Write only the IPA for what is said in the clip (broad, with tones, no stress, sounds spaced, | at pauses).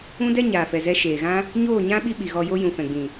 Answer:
ũ˦ d ɛ˦ ɲ aː˨ f ɛ˨ z ɛ˧ ʃ eː˨ ɣ ã˦ | ɲ oː˦˨ ɲ ã˦ ɓ i˦ ɓ i˨ ɣ ɔ˧ j o˦ j ũ˨ f ɛ̃˨ ɡ͡b ĩ˨